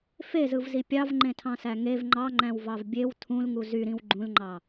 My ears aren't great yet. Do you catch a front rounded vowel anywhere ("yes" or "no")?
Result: yes